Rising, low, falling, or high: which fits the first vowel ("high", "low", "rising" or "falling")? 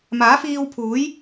rising